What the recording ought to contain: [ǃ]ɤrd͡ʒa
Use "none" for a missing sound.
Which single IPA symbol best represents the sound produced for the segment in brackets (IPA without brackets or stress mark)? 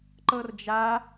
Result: ǃ